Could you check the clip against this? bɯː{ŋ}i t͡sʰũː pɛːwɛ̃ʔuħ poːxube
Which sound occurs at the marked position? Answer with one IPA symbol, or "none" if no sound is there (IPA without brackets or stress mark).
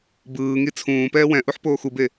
ŋ